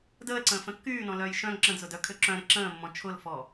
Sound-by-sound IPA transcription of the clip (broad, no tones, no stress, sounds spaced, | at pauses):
d əː l ǀ ə̃ː f ə̃ kː yː n ɔ̃ l œː j ʃ œ̃ ŋ ǁ ə̃ d z ʊ d œ kʰ ø ǁ œ̃ ɾ ɪ ǁ ə̃ː mː ɔ̃ t͡ʃʰ ʊ l f ɔ